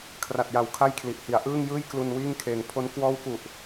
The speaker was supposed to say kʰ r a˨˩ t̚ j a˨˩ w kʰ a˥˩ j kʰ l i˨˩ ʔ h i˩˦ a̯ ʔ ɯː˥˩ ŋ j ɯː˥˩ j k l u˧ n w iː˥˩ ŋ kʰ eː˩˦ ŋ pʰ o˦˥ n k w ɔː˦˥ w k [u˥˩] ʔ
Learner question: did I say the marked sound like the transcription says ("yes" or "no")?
no